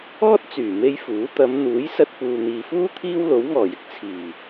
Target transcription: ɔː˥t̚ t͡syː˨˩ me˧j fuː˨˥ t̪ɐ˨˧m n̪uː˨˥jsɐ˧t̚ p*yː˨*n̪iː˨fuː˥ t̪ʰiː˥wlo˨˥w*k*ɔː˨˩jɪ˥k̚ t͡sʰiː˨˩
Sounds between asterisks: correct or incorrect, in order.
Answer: incorrect: uː˨, incorrect: ŋ

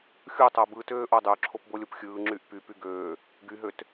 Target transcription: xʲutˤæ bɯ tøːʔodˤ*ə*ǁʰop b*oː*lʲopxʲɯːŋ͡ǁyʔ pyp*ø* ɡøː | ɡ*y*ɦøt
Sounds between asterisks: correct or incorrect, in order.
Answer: incorrect: ø, incorrect: o, incorrect: y, correct

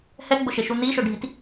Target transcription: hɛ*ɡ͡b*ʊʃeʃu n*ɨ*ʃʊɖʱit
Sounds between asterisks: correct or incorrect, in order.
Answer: correct, incorrect: i

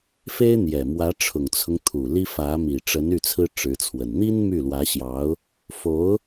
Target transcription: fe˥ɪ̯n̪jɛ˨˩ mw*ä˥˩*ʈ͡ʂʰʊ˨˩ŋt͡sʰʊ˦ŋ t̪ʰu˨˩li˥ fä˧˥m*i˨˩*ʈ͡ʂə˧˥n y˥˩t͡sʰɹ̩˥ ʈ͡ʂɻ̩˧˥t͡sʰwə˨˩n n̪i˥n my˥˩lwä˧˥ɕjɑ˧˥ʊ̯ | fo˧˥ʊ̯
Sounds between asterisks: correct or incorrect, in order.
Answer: incorrect: ä˧˥, correct

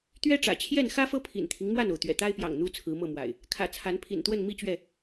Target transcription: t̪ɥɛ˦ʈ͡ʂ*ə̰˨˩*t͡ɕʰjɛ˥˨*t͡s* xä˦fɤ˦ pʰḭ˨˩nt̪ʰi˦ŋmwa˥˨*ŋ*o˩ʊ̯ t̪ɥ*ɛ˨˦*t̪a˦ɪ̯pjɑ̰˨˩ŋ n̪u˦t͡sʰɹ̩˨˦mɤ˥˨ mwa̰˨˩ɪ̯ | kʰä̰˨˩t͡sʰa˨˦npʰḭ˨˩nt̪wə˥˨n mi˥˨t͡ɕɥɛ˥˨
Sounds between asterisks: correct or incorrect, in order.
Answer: incorrect: ä̰˨˩, incorrect: n, incorrect: n, incorrect: ɛ̰˨˩

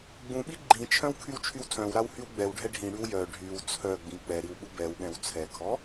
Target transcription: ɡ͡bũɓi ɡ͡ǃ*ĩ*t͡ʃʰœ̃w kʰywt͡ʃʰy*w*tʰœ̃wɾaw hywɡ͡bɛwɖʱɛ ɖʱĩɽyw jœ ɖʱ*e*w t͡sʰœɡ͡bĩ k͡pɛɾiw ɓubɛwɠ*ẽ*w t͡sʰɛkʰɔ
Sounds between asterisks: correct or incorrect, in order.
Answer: correct, correct, incorrect: y, incorrect: ɛ̃

